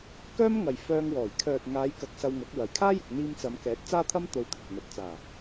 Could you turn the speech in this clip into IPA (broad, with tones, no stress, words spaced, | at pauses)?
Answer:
kœː˥m ŋɐ˨jfœː˧ŋwɔː˨˩j kʰœː˨t̚ŋaː˨˧jkɐ˨k̚ sɐ˧wŋɐ˨˥k̚wɐ˨˩j kʰaː˥jɪ˨k̚n̪iː˧m t͡sɐ˨˧m kɛː˨˥t̚t͡saː˥t̪ʰɐ˥m t̪o˧wt̪ʰɪ˨k̚ n̪ɐ˨t̚t͡saː˨˩